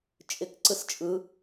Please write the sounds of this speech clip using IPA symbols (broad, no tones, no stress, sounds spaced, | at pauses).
t͡ʃʼ ɪ k ǀ ɯ s t͡ʃʼ ɯ